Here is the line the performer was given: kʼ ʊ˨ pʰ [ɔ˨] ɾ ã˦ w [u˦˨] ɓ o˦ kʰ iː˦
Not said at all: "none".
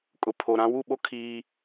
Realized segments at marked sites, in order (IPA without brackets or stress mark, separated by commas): o˨, u˦˨